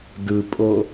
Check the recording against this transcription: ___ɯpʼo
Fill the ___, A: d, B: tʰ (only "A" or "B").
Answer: A